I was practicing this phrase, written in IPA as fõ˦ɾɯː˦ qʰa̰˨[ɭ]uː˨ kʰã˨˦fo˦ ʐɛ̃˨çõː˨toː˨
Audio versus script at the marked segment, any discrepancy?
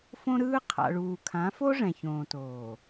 no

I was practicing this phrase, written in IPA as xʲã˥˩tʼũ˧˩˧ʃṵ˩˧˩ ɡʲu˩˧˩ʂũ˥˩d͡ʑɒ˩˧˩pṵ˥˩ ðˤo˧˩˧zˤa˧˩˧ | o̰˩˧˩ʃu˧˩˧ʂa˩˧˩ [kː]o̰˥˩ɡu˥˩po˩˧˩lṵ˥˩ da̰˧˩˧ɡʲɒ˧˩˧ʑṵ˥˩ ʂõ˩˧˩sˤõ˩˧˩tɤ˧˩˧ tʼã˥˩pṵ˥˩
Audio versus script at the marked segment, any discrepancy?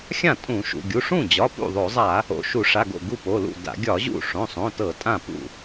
yes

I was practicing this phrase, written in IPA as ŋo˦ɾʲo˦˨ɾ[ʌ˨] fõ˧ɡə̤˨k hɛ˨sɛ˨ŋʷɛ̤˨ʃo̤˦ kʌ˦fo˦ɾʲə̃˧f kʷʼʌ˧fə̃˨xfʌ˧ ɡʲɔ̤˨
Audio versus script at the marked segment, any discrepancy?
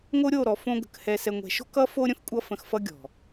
yes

